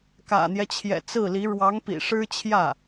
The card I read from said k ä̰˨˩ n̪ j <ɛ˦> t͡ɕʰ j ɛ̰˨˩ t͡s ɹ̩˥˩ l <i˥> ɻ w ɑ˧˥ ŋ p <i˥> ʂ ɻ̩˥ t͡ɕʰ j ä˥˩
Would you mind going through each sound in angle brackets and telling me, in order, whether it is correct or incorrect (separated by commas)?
correct, incorrect, incorrect